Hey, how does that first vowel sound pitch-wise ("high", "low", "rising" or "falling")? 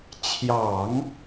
low